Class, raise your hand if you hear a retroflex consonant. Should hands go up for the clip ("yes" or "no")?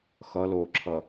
no